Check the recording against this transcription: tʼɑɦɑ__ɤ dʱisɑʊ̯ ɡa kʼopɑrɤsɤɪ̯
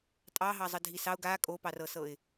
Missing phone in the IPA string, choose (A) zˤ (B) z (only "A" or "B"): A